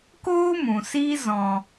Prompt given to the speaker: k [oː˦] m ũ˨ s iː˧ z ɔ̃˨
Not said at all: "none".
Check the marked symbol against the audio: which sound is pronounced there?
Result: oː˦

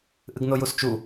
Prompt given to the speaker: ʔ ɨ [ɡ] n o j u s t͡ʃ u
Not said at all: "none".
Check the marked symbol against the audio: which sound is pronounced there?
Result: ɡ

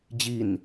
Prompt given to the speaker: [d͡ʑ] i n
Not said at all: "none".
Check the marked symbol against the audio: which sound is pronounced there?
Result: d͡ʑ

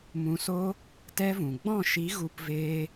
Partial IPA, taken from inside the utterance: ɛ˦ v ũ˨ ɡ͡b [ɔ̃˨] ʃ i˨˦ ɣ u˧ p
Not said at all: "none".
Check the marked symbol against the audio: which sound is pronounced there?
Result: ɔ̃˦˨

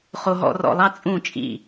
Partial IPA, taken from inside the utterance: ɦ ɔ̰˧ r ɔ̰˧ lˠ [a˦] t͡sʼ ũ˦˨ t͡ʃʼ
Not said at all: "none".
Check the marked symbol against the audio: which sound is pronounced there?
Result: ɑ˦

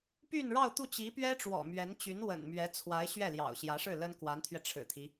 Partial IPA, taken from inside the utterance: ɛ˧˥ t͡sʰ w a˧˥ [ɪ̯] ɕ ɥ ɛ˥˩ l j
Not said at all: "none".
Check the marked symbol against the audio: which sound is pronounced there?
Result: ɪ̯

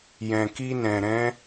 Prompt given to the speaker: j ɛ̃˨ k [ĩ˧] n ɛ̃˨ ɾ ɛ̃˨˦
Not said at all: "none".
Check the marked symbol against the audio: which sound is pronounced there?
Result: i˧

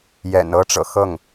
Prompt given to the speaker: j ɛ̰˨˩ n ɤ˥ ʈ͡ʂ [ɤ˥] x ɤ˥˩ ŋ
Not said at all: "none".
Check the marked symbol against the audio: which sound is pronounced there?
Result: ɤ̰˨˩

